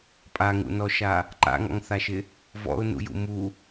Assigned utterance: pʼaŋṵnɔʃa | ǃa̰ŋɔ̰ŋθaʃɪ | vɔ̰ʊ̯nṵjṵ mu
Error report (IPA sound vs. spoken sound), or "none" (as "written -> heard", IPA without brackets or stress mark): none